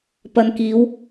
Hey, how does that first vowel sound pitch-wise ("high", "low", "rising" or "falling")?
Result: low